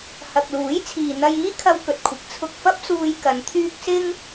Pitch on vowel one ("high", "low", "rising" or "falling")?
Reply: low